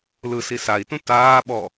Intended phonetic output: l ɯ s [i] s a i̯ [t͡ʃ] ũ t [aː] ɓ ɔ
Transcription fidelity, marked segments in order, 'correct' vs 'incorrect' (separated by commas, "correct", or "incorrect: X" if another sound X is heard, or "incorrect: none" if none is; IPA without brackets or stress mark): correct, incorrect: t, correct